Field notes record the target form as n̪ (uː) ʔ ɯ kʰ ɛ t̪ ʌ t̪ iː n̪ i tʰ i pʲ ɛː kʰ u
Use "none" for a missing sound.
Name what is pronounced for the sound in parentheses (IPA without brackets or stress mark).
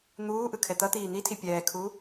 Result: uː